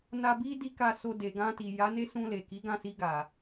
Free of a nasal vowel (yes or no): no